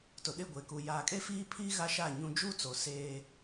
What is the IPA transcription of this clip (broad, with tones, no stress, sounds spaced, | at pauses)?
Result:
t ʊ˨ ɗ ɪ˦˨ ɡʷ e˨ k u˨ j aː˨ kʼ e˦ f iː˦ pʰ iː˦ ɣ a˦ ʃ aː˦˨ ɲ ũ˦ d͡ʒ u˦ t͡s o˨ s eː˦